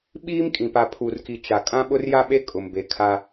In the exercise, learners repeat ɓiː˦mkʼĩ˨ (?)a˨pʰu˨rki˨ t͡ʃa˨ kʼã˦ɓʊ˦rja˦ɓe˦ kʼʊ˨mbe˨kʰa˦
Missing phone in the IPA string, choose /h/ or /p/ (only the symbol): p